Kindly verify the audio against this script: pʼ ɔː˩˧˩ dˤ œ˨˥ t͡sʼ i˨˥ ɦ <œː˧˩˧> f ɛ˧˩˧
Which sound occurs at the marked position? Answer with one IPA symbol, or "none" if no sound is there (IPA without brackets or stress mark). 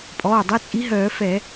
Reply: œː˧˩˧